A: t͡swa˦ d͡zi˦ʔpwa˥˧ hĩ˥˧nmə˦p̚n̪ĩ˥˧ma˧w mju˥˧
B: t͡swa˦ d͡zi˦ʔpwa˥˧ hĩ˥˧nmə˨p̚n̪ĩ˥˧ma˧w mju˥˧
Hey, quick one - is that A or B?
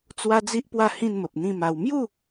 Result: B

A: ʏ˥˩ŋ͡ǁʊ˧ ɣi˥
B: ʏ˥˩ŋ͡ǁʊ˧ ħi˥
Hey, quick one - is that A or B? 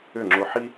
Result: B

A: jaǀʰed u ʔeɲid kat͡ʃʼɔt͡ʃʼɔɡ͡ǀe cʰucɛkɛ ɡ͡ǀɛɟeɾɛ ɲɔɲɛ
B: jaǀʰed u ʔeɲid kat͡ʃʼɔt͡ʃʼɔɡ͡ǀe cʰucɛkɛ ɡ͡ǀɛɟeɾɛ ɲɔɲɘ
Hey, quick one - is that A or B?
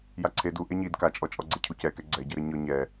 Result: A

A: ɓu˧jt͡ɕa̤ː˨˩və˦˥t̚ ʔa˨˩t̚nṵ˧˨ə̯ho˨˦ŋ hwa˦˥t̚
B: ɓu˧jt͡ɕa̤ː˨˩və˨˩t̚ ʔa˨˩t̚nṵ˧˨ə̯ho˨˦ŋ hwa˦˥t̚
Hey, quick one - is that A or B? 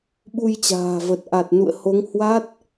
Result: B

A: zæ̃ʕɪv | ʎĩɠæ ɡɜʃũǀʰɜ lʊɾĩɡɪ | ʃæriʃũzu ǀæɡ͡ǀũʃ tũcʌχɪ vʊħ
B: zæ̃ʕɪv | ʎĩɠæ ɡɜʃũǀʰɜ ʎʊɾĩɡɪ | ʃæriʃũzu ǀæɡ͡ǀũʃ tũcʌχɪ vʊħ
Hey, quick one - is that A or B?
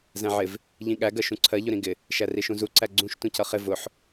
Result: B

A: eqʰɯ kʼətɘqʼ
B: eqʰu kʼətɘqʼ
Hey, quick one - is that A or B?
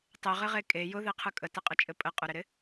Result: A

